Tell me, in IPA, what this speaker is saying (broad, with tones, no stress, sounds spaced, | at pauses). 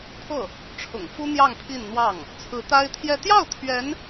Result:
t̪ʰ ɤ˥˩ | ʈ͡ʂʰ ʊ̰˨˩ ŋ f u˥ n̪ j ɑ˥˧ ŋ pʰ i˥˧ n n̪ w ɑ˥˩ ŋ | t͡sʰ ɹ̩˧˥ t̪ a˥ ɪ̯ t̪ʰ j ɛ˥˧ t̪ j ɑ˥˩ ʊ̯ t̪ʰ ɥ ɛ˧˥ n